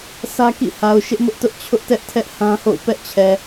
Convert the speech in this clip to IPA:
sʰ ä˦ k ḭ˦˨ h a˨ ʊ̯ ʃ ɪ˦ ʔ m ʊ˦ ʔ t ʊ˦ ʔ t͡ɕʰ ʊ˦ ʔ t ɛ˦ ʔ tʰ ɛ˦ ʔ h ã˦ h o̰˦˨ ʊ̯ p ɛ˦ ʔ t͡ɕʰ ɛ˨

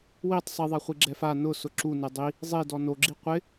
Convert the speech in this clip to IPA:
w i tˤ sˤ i ðˤ a χʷ i ɡ͡ǁ ɛ f a n ʊ s ʊ ǁ u n e dˤ i | zˤ i d ɔ n o ɡ͡ǁ i qʷ ɪ

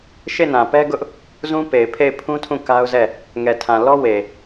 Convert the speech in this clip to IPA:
ʃ e˦˨ n ã˨ p ɛ˦ ɡ ʊ˦ ʔ | z ũ˦ p e˨ ɪ̯ pʰ e˦˨ ɪ̯ pʰ ũ˦ tʰ ũ˦˨ k a˦ ʊ̯ z ɛ˦˨ | ŋ ɛ˨ tʰ ã˨ l ɔ˦ w e˨

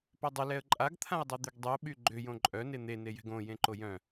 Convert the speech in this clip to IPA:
p œ dˤ ʏ l ɛ ə̯ ǃʼ a ɡ t̪ʰ ã ɪ̯ dˤ e d̪ y ɡ dˤ y ʊ̯ ɓ y ɡ͡ǃ ʏ j õ ǃʼ œ n e n̪ e n e j ɛ̤ ɡ õ j ẽ ǃ o j œ̃

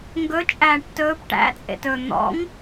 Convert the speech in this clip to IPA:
ŋ ɡ ɵ t͡ʃʼ æː ʈ t ɵː p ʈ æ̰ t͡sʼ ḛ t ɵː n̪ ɔ̰ ŋ

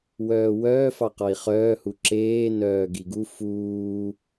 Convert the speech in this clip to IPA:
w œː w œː f ɑ q ɔ i̯ χ œː h u ǁ eː n œː ɡ i ɡ u f uː

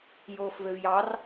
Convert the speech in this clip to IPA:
j oː f v ø v j ɑ r

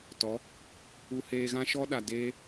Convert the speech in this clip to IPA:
t ɔ˨˦ | u˧ h eː˧ ɣ ã˦ ʃ ɔ˦ ɗ a˨ d eː˦

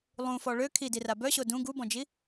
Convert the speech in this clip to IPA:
lˠ ũ f ɔ ɭ ø kʰ i d i r a b œ ɕ o d ũ ɡ u b ɔ̃ d͡ʒ i

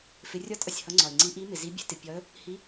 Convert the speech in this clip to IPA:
f ɪ˨˦ rʲ ɒ˧˥˧ t ʔ ʌ˩ sʲ h ʌ˨˦ ŋ͡ǀ ɒ˩ ɪ̯ ŋ͡ǀ i˨˦ ʔ i˨˦ m ɪ˩ z i˨˦ bʲ ɛ̤˨˦ t ɪ˩ pʲ ɒ˨˦ ə̯ | h i˨˦

